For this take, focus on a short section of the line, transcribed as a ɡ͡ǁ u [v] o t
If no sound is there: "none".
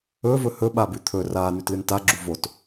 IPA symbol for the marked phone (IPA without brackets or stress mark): v